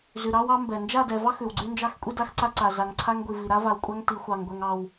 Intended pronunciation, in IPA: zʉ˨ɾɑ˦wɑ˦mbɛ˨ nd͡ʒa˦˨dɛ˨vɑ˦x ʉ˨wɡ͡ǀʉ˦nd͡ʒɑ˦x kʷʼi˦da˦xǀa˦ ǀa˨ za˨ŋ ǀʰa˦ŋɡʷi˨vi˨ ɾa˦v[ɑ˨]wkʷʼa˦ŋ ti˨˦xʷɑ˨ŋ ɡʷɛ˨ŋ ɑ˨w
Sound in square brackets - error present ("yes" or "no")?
yes